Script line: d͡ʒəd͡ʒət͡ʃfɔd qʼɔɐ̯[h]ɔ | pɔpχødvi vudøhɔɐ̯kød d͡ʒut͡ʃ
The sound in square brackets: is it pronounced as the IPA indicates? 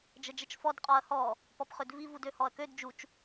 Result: yes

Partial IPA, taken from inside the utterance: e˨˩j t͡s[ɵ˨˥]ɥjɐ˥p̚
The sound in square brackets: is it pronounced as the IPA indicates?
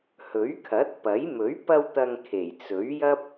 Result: yes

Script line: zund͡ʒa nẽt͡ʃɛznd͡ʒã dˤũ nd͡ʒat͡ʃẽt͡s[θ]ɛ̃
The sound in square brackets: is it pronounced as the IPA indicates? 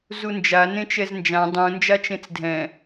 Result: no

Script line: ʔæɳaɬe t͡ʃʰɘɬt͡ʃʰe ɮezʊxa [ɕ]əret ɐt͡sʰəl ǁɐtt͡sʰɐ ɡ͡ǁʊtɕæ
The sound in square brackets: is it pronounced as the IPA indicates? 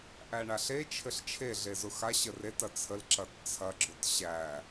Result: yes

